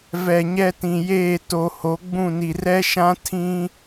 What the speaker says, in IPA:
vɛ˨ɲɛ˦tĩ˨jeː˦˨ to˨ ho˨˦ɡ͡bũ˦˨ni˨ rɛ˦ʃã˦ tʰĩ˦

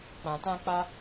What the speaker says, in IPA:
k͡pã˨tã˧k͡pa˧

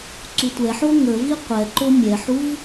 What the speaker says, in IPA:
ǀutʷɛħo ŋəvi qʷɛǃo mʲɛħuv

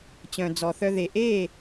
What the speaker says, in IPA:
t͡ɕœ̃˨d͡zɔ˨θœ˧ ðe˨ ʔe˦˨

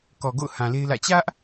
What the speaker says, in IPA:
kɔ˨ɡo̰˦˨ʊ̯ hã˨le˦ɪ̯lä̰˦˨ t͡ɕä˦ʔ

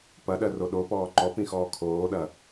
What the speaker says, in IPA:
pɐɗɜro ɗopɔː ǃɔpĩxɔː kʰoːɗɐ

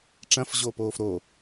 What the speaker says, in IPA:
ʈ͡ʂɐ̃fʑoːpoːf ɾo

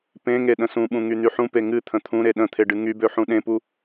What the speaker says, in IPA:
pẽŋe ɗə̃sũɓũ ŋyn̪yħũpe ŋɨ t̪ʰə̃t̪ʰũɾe ɗə̃t̪ʰe ɖɨŋybø ħũɗẽpu

